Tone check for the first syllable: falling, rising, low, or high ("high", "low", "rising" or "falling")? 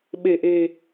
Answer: low